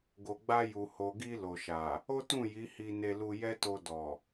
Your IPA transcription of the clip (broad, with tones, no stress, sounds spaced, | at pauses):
ɡ o˨ ɡ͡b a˧ j u˨ h o˨ ɡ i˧ l o˨ ʃ a˨ | o˦ t ũ˦˨ j i˨˦ h i˧ n e˧ l u˧ j ɛ˦ t o˧ d ɔ˨